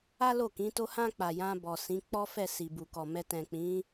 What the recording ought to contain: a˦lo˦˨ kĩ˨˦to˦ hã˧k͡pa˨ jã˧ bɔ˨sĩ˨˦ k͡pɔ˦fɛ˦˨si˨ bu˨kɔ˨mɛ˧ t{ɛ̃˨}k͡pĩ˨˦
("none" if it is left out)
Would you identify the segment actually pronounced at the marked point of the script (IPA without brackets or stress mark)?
ɛ̃˨